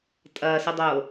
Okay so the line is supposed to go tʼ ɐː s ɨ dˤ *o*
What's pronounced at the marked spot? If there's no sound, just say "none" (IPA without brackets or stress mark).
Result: o